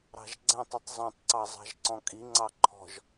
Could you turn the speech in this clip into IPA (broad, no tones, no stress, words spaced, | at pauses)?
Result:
ɾɑ̤ʒɡ͡ǀɛ̃tˤitˤ zˤõtˤǀɑ zˤɑ̤ʒǀɔ̃kʼiŋ͡ǀɑ ǃʰɔ̤ʒ